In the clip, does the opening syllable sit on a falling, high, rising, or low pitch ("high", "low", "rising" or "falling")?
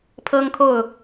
high